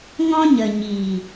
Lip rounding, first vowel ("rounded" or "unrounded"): rounded